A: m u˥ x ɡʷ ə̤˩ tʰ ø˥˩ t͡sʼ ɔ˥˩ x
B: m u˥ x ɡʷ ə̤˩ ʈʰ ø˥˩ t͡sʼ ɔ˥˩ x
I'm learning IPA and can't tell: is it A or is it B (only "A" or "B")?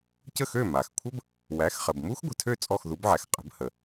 A